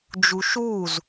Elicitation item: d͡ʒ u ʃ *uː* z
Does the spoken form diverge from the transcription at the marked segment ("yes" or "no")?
no